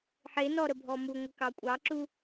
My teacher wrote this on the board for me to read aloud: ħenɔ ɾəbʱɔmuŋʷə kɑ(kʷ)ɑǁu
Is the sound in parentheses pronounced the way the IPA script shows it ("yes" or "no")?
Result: no